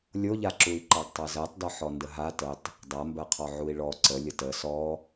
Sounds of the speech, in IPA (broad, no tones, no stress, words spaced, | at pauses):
lʲoʎaǁui̯ ǃɑɡtˤɜzɜtˤdɔ ħɔndəɦa tətˤ | dˤambɜqʰɔ ʕui̯ɭɔ ǀəlʲə tə sɔ